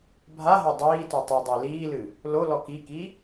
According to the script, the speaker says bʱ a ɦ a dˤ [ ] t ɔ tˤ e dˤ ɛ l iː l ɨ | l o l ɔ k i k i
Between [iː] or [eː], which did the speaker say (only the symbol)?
iː